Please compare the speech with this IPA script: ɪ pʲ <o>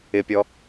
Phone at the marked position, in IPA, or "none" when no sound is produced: ɔ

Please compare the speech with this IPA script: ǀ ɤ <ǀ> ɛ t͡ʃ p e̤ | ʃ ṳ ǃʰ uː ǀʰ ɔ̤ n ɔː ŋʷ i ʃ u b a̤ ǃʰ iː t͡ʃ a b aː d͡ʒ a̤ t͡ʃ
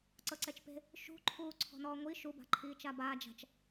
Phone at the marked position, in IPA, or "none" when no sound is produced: ǀ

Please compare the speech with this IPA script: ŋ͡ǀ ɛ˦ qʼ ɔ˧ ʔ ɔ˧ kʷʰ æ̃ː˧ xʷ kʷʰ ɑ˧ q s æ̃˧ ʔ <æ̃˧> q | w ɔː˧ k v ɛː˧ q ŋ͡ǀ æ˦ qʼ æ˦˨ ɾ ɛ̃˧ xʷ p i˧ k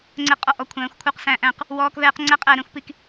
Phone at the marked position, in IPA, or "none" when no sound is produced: æ̃˧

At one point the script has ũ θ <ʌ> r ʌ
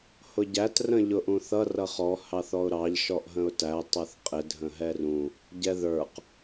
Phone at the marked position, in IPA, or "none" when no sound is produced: ʌ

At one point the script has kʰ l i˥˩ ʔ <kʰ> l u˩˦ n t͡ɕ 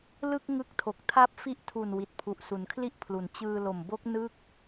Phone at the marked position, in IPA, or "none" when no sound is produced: pʰ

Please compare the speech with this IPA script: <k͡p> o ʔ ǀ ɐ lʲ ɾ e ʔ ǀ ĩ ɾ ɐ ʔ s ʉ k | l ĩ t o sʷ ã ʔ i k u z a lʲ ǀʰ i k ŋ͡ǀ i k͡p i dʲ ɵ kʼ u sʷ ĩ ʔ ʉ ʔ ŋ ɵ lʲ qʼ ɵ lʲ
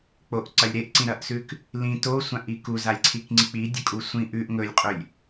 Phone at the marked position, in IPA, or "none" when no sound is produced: k͡p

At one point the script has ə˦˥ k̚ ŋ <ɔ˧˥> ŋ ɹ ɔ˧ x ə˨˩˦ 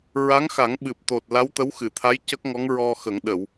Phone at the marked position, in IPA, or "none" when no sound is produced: ɔ˧˥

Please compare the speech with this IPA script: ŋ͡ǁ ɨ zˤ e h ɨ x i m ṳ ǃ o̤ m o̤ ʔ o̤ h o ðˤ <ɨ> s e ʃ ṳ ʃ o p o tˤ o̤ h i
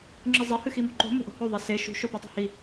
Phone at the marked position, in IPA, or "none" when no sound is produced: e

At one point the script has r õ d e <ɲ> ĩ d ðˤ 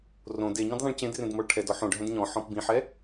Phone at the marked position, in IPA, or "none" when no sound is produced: ɲ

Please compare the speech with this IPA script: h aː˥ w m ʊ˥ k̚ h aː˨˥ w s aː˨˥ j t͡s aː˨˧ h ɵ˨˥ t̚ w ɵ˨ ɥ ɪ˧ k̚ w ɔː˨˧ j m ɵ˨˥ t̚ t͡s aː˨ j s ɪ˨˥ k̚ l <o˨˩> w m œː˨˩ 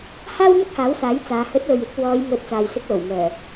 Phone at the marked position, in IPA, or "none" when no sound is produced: o˨˩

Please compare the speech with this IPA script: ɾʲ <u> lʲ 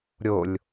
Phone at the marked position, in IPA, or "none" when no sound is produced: o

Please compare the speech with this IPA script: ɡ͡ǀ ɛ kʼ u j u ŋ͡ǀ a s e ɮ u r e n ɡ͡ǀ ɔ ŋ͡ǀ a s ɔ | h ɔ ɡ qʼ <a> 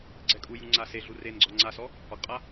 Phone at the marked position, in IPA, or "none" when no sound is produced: a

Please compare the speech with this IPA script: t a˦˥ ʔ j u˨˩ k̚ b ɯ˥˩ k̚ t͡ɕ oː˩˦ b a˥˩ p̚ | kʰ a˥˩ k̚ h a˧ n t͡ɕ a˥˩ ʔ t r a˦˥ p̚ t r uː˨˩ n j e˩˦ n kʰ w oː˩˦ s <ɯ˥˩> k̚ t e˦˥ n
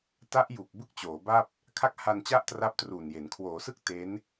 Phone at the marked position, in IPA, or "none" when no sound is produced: ɯ˥˩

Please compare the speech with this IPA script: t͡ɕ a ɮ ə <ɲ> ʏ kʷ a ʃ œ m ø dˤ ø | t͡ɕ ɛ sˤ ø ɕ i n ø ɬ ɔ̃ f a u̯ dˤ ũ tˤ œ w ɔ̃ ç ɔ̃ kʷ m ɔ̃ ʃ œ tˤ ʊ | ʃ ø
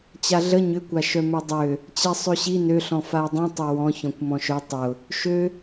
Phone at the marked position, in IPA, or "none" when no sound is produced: ɲ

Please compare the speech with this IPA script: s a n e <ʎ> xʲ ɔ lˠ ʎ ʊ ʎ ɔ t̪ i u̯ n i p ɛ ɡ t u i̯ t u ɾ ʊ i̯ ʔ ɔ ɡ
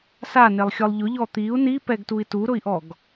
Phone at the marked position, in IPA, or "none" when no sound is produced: lˠ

